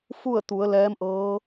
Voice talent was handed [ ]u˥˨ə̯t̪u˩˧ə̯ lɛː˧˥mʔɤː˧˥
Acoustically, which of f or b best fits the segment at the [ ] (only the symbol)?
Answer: f